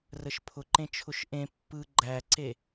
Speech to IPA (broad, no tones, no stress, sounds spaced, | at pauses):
r ə ʃ pʰ ʊ ǃ ẽ t͡ʃʰ ʊ ʃ ʔ ẽ pː ɯ ɡ͡ǃ æ ǀ e